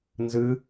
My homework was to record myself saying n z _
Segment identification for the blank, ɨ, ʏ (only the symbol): ɨ